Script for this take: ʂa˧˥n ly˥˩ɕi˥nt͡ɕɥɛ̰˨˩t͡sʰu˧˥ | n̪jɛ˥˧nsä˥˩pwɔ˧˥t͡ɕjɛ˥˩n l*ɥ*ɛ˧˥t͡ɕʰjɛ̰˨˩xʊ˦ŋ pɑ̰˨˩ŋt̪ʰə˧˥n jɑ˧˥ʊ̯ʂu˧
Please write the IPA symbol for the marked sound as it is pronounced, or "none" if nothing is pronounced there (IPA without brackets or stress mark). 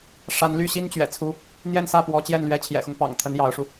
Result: ɥ